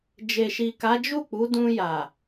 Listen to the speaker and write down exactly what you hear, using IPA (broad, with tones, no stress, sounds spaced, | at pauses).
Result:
d͡ʒ e˨ ʃ i˨ k a˨˦ d͡ʒ u˦˨ k͡p u˨˦ d ũ˧ j a˨